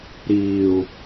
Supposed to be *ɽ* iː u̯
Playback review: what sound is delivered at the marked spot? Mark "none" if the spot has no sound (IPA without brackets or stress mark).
ɾ